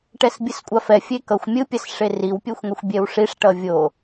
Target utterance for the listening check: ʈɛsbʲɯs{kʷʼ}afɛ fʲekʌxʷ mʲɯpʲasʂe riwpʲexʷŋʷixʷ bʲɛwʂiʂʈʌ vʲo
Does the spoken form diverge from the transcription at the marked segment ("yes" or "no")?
no